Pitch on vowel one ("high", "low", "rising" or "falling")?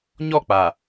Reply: falling